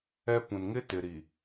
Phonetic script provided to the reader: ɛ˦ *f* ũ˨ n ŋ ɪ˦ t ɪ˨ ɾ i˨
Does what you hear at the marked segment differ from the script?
yes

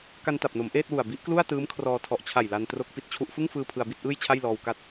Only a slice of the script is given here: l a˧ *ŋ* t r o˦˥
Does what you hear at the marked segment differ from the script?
yes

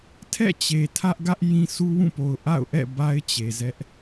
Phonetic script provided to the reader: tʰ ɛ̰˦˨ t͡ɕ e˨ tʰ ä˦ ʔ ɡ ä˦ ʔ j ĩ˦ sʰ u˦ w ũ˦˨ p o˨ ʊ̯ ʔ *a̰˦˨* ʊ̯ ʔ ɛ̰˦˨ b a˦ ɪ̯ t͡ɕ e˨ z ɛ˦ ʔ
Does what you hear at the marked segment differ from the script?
no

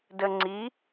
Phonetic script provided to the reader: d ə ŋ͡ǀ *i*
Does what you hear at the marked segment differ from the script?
no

